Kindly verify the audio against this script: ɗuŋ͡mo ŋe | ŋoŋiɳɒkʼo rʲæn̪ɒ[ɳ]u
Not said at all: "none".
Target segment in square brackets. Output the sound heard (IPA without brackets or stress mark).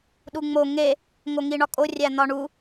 ɳ